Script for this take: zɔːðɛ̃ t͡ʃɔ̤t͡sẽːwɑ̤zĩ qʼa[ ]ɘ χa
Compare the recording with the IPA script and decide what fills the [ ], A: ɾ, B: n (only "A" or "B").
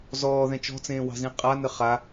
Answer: B